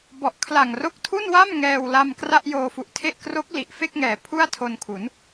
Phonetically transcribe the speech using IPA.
b ɔ˨˩ ʔ kʰ l a˨˩ ŋ r o˦˥ k̚ tʰ u˥˩ n w a˥˩ m ŋ ɛː˧ w l a˧ m k r a˥˩ ʔ j oː˧ f u˨˩ ʔ tʰ e˥˩ ʔ k r o˦˥ k̚ l i˨˩ ʔ f e˥˩ k̚ ŋ ɛː˩˦ pʰ u˥˩ a̯ tʰ o˧ n kʰ u˩˦ n

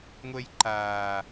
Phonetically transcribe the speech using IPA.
ŋʷ ɛ j ǃ aː

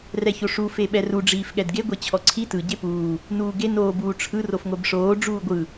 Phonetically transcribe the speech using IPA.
r ɛ ç o ʂ u f e ɓ ɛ r u ɖ͡ʐ iː f ɠ ɛ d ɡ e ɡʷ e t͡ɕʰ ɔ ǀʰ i t ɯ ɟ e p uː | n uː ɡ e n oː b uː ʈ͡ʂʰ ɯ r o f ŋʷ ɛ b ʂ oː ɖ͡ʐ uː ɡʷ ɯ

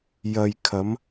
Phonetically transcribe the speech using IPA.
j ɐ˨ j kʰ ɐ˨˧ m

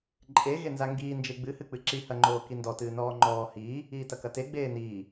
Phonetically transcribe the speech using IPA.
ǃʼ e ɣ e n z a ŋ ɡ iː n d͡ʒ e ɡ͡b ɨ h ɨ k͡p ɨ ǁ i h ɐ ŋ͡ǃ oː k i n d ɔ t ɨː n ɔː ŋ͡ǃ ɔː h iː | iː t ɐ k ɐ t e ɡ͡b eː n iː

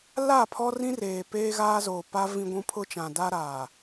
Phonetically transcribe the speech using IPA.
l a˦˨ pʰ ɔ˦ r ĩ˦ r eː˨ p eː˦ ɣ aː˦ z oː˨ p a˦ v ĩ˦ ɡʷ ũ˦ pʰ ʊ˦ t͡ʃ ã˨ d a˦ ɾ aː˨

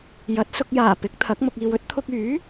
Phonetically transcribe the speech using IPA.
j ɐ˨˥ t̚ s ʊ˧ k̚ j aː˨˩ p ɪ˨˥ k̚ t̪ʰ ɐ˨˥ k̚ m ʊ˨ k̚ iː˨ w ɵ˨˥ t̚ t̪ʰ ʊ˧ k̚ yː˨˥

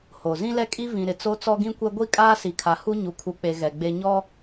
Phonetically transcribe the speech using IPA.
h o˨ z ĩ˦ l ɛ˦ kʼ i˦ v ĩ˨ ɾ ɪ˨ t͡s o˦ t͡s ɔ˦ ɡ ĩ˦ kʷ ɛ˦ ɡʷ i˦ kʼ aː˦ s i˨ kʰ a˨ h u˦ ɲ u˨ kʰ u˨ k͡p e˨ ɣ ɛ˨ ɡ͡b e˦ ɲ ɔ˦

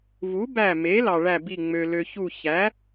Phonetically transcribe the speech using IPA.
v u˩˥ b æ˧˩ m e˩˥ l ɑ˩ ɭ æ˧˩ b i˧˩ ŋ͡m ø˩ l ø˩ ç u˧˩ ç æ˩˥

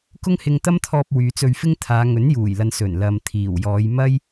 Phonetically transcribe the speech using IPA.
k ʊ˥ ŋ h ɪ˧ ŋ t̪ ɐ˥ m t̪ʰ ɔː˧ p̚ w yː˨˧ t͡s ɵ˧ ɥ f ɪ˥ ŋ t̪ʰ aː˨˧ ŋ ɵ˨˥ n j uː˨˩ j l ɐ˨ n s ɵ˨˩ n l ɐ˨ m t̪ʰ iː˨˩ w j ɔː˨˧ j m ɐ˥ j

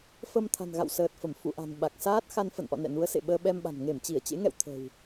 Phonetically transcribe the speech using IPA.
f ə˧ m t̪ʰ a̤˨˩ n ɣ a̰˧˨ w s əː˨˩ t̚ f ə˧˩ m f ṵ˧˨ ʔ a̤˨˩ n ɓ a˨˩ k̚ s aː˦˥ t̚ x a˧ n f ə̰˧˨ n ʔ ɔ̰˧˨ n ɛ̰˧˨ n u˨˦ ə̯ s ḛ˧˨ ɓ əː˧ ɓ ɛ˧ m ɓ a̤˨˩ n ŋ e˧˩ m t͡ɕ i˧˩ ə̯ t͡ɕ ḛ˧˥ ŋ ɛ̰˧˨ w t̪ʰ ə̤˨˩ w

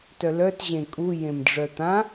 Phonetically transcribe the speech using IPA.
t œ l œ t ʑ ẽ kʼ u j ẽ m ɖ͡ʐ œ t̪ ã

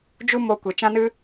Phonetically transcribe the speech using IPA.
d͡ʒ u˦ m o˧ kʷ e˨ t͡ʃ ã˦ n ɨ˦

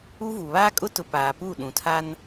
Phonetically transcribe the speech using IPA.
u˦ v u˨ β aː˦ kʼ ʊ˦ t ʊ˨ p aː˨ p u˦˨ ɗ ũ˨ tʰ a˦ n

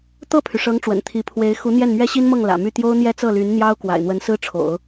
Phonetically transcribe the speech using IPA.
t̪ ɤ˥˩ pʰ y˩ ʂ ɤ˧˥ ŋ ʈ͡ʂ w ə̰˨˩ n t̪ʰ i˧˥ pʰ w e˧˥ ɪ̯ x u˧˥ n̪ j ɛ˥˩ n m ɥ ɛ˥ ɕ i˥ n m ɤ˥˩ ŋ l ä̰˨˩ m y˥˩ t̪ j o˥ ʊ̯ n̪ j ɛ˥ t͡s ɤ˥˩ l y˧˥ n n̪ j ɑ˥ ʊ̯ k w a̰˨˩ ɪ̯ n̪ w ə˧˥ n s ɹ̩˥ ʈ͡ʂʰ o̰˨˩˦ ʊ̯

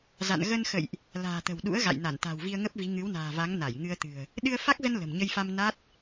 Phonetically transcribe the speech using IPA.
z a̰˧˨ n ɣ ə˧ n x ə̰˧˨ j ʔ | l a̤ː˨˩ t̪ ə̤˨˩ w ɗ ṵ˧˥ ə̯ ɣ a̰˧˨ j n a˧˩ n t̪ a̤˨˩ w v i˧ ə̯ ŋ ə˦˥ p̚ v i˨˦ ŋ ɨ˨˦ w n a̤ː˨˩ v a˨˦ ŋ n a˧˩ j ŋ ɨ˧ ə̯ t̪ ɨ̤˨˩ ə̯ | ɗ ɨ˧ ə̯ f a˦˥ k̚ z ə˧ n l ə̤˨˩ m ɲ ə˧ j f a˧ m n a˦˥ t̚

